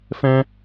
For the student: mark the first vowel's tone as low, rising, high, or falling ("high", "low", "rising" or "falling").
high